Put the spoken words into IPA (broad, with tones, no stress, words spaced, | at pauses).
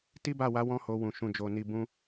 ti˦ba˦˨wa˨˦ wɔ̃˦ho˧wũ˨ ʃũ˨d͡ʒo˨ni˨bũ˧